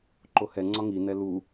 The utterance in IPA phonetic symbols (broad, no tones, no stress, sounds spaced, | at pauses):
ǃ o h ɛ ŋ͡ǀ ɒ ŋ i n ɛ l u